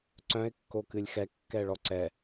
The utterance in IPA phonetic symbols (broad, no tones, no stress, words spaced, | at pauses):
ǀœ̃ɪ̯kːokɨlʲ xɛkːɛɭɔ ǀɛ